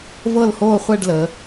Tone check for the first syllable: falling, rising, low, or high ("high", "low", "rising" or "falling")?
falling